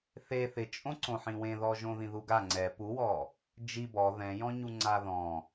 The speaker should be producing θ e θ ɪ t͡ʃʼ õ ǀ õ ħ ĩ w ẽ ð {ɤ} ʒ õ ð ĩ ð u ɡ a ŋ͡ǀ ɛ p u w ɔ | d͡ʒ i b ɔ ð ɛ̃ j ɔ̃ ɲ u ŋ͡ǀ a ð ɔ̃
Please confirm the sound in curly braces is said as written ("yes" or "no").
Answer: no